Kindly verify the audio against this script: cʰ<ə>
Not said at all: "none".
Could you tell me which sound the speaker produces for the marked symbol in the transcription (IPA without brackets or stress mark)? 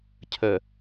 ə